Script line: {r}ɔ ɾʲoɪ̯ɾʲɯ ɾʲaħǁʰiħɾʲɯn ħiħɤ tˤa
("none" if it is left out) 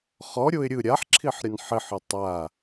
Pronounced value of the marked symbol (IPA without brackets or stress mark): χ